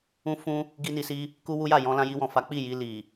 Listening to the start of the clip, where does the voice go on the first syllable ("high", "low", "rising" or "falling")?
high